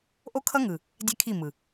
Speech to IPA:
ʔ o˦ kʰ ʌ˦ ŋ ɯ˨ | dʲ ɛ˦ kʰ i˦˨ m ɯ˨

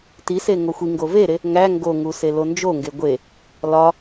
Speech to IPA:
t i s e ŋ o xʷ i ŋ ɡ o v e ɾ e | ŋ æ ŋ ɡ o ŋ u s e l o n d͡ʒ o ŋ ɡ e ɡʷ e | l ɒ

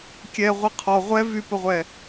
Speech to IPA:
kʲ ɛ ʁʷ i qʰ ɔ ʁʷ ɛ v y p ə ʁʷ ɛ

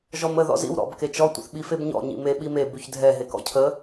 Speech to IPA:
ʒ ɔ m ə ð ɔ̰ z ḭ w ɾ ɔ̰ b k e t͡ʃ ɔ tʷ ə̰ θ ɓ i f e b ɲ ɔ̰ ɲ ḭ m e ɓ i m e b ʉ ç dʱ ɛ ɦ e k ɔ̰ cʰ ə

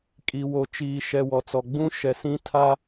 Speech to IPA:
kʼ i˨ w o˨ t͡ʃ iː˨ ʃ ɛ˨ w ɔ˨ t͡s ɔ˨ ɡ͡b ũ˦ ʃ ɛ˨ s ĩ˦ tʰ a˦

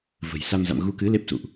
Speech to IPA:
v ə̤˨˩ j s a˧ m z a̰˧˨ m ɣ u˨˦ k ɨ˨˦ l e˦˥ p̚ s ṵ˧˨ ʔ

